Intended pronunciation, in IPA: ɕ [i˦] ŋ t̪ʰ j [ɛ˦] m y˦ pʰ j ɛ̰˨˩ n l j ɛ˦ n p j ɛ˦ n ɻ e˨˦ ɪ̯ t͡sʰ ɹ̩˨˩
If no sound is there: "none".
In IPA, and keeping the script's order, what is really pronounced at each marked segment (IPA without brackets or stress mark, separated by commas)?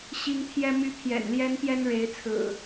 i˦, ɛ˦